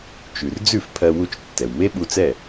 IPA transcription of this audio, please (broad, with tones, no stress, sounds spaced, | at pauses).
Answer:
t͡ʃ ʉ˩ r d͡z ʉ˥˩ f pʰ ɜ˧ w u˧ t͡ʃ tː ɛ˩ w m e˥ ɓ u˧ t͡s ɛ˥˩